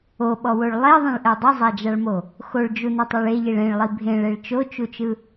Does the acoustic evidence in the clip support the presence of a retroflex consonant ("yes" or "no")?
yes